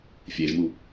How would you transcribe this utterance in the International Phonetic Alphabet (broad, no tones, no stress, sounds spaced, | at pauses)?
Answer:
fʲ e ʒ m u